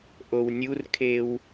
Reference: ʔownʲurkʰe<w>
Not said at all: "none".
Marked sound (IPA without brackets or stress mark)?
w